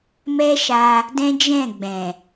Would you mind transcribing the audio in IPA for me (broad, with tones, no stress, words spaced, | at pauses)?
mɛ˦ʃa˧ | dɛ̃˦d͡ʒɛ̃˦˨ ɡ͡bɛ̃˨